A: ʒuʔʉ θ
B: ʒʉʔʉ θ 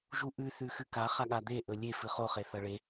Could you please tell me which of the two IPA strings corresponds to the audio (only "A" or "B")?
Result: A